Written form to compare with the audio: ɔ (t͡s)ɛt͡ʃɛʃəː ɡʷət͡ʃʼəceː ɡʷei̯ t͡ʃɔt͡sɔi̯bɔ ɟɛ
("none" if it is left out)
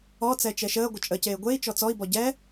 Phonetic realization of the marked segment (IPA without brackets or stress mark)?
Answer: t͡s